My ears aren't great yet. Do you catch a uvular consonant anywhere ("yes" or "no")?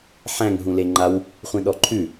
yes